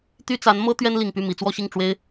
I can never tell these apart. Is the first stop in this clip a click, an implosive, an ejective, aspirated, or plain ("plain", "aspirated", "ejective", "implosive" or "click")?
plain